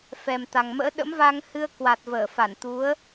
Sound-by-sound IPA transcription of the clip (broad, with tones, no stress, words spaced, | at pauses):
fɛ˨˩mt̪a˨˩ŋmə̰ː˧˥ ɗə̰˧˥mva˧ŋhɨ˧ə̯ kwa˨˩t̚vəː˧˩fa˧˩nt̪u˨˦ə̯